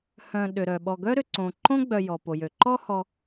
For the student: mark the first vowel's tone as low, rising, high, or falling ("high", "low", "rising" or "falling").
low